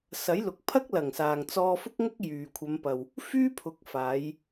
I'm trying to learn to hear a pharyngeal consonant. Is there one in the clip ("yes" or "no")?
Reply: no